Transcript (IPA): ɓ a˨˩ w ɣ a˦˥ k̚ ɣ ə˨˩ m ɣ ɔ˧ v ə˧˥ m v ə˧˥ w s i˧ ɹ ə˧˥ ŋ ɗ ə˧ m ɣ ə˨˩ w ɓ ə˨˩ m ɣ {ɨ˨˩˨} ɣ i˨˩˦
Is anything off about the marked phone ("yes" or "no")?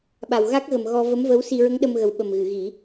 no